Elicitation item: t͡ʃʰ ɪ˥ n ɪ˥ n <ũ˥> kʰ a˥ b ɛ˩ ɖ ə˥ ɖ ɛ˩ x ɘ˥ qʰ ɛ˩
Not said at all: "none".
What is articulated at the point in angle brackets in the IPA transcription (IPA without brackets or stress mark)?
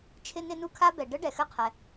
u˥